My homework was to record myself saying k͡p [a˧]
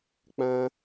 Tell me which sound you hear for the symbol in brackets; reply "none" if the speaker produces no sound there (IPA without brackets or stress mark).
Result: ã˧